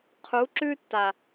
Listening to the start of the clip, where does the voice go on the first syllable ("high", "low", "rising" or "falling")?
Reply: rising